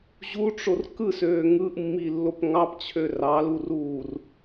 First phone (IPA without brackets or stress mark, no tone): ʑ